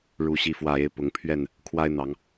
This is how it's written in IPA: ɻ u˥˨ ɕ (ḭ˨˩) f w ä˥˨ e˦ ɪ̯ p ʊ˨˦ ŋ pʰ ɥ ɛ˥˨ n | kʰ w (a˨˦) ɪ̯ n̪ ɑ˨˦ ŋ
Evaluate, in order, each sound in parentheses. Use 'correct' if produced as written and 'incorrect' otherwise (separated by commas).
incorrect, incorrect